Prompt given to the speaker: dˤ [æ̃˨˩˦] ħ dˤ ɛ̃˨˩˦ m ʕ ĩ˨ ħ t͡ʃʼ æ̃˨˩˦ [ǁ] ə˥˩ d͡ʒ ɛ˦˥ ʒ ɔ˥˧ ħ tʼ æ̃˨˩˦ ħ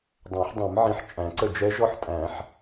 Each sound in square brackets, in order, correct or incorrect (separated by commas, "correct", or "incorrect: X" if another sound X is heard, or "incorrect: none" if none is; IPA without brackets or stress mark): correct, incorrect: ǀ